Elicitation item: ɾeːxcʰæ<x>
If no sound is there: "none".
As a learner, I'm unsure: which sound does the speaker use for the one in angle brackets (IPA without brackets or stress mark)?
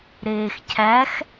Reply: x